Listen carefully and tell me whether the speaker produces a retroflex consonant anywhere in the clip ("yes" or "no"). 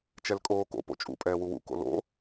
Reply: no